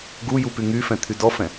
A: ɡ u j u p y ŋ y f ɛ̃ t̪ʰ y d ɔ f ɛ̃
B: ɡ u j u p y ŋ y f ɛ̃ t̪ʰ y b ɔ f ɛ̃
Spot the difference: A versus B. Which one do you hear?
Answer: A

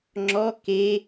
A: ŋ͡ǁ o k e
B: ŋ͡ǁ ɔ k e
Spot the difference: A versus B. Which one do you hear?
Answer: B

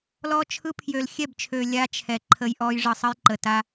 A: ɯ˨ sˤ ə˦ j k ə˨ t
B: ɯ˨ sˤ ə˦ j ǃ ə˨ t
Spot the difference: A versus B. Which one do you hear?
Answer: B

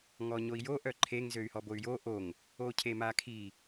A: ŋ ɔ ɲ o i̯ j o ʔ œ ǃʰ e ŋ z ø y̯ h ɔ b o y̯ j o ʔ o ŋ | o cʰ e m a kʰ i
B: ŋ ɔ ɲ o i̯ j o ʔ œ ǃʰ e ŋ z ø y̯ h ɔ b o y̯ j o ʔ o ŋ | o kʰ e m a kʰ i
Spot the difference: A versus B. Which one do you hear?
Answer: A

